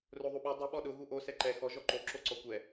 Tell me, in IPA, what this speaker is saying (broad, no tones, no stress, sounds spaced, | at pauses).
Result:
r o ðˤ u ɓ o dˤ ʊ ɓ ɔ ɗ ʊ ɣ u ʔ o s ɛ ǃ ɛ x ɔ ʒ ɔ ǃ o ǁ o ǀ ɔ kʷ ɛ